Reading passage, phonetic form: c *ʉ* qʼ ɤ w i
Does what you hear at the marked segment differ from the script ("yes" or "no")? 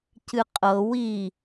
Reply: yes